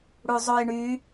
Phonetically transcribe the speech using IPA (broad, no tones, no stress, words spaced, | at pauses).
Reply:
ɽuzˤojɳy